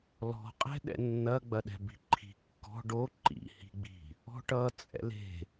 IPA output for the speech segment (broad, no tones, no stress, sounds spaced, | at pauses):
l ɔ̤ qʼ ɛ̤ ɗ ɛ̰ nː ɐ ɡ͡b ɐ ɗ ɛ̤ b i̤ ǃʰ i̤ kː ɔ̤ ɖ o ǃ ḭ h i̤ ɡ͡b i̤ | ɔ̤ ʈ ʌ t͡sʼ ɛ̰ l e̤